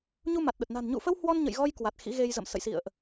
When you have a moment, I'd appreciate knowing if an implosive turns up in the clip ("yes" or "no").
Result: yes